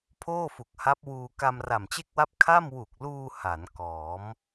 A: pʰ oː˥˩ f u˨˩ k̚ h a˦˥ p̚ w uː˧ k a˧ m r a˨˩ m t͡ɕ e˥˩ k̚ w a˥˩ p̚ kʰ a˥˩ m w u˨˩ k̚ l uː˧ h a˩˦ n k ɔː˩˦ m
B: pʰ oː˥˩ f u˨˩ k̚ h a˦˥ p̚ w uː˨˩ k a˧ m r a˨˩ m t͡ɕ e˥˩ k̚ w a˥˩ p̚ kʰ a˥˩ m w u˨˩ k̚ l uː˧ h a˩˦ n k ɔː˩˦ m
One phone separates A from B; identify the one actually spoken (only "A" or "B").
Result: A